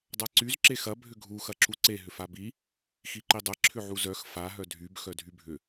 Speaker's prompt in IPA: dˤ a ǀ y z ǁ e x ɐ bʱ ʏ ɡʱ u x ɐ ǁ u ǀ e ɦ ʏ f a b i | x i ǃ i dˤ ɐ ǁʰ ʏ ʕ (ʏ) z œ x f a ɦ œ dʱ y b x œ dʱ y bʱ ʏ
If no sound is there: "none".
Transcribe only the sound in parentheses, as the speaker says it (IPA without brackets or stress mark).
u